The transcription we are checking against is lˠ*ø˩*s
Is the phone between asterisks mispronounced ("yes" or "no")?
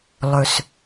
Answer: yes